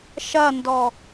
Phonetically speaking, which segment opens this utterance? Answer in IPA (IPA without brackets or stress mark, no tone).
ʃ